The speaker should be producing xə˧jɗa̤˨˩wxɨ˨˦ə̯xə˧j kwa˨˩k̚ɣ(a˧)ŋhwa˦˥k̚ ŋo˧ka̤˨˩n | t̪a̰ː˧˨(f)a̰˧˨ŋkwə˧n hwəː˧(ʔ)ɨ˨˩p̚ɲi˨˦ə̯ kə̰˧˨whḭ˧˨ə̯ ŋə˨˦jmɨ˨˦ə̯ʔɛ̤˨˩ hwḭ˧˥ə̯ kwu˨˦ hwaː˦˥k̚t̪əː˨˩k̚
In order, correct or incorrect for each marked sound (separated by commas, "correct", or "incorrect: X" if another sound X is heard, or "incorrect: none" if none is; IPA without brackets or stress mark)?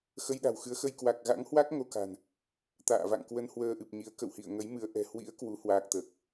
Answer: incorrect: a̰˧˥, incorrect: v, correct